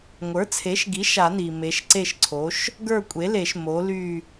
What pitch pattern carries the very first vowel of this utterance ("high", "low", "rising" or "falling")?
rising